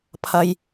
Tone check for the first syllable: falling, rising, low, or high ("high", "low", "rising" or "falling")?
low